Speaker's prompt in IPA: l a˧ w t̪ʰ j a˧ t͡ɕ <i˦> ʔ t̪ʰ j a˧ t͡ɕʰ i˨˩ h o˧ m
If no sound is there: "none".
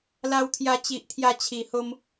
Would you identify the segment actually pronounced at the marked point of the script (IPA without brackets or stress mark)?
i˨